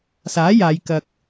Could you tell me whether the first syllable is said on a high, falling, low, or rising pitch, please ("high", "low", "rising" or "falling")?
rising